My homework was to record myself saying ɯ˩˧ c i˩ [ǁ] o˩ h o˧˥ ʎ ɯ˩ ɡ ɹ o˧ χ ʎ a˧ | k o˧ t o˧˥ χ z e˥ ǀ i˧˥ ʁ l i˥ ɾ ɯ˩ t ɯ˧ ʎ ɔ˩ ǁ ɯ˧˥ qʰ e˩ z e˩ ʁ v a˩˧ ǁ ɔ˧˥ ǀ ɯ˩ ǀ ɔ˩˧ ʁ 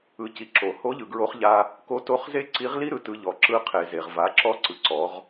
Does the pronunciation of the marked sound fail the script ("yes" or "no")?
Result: no